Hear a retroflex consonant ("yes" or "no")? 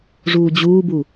yes